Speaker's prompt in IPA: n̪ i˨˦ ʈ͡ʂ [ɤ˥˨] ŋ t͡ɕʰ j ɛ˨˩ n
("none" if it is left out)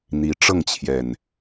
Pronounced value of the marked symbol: ɤ˥˨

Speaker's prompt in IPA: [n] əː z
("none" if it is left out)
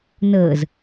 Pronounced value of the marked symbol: n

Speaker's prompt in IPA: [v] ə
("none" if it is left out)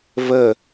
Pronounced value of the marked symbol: v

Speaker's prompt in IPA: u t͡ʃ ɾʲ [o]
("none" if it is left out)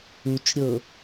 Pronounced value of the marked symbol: ɤ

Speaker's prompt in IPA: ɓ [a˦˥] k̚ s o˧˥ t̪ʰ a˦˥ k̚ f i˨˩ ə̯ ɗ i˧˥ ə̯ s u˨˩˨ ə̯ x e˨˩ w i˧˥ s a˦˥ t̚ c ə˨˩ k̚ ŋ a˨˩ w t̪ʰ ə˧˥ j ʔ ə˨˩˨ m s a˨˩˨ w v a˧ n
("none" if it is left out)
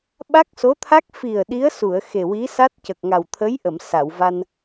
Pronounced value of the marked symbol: a˦˥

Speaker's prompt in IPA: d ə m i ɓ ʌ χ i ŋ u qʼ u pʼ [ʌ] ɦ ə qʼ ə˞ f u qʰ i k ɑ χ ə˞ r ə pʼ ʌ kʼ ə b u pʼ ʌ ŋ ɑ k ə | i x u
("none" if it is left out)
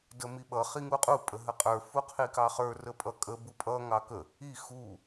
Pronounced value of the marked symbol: ə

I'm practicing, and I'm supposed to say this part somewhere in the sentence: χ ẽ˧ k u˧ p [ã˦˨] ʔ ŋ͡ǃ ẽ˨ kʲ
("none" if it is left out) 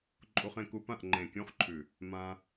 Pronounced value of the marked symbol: ã˦˨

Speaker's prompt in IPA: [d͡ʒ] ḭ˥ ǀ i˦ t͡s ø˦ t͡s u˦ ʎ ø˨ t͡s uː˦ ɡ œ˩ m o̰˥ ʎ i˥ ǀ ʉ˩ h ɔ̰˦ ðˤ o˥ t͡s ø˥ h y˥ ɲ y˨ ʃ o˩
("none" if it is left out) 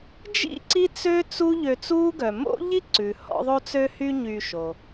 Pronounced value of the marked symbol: d͡ʒ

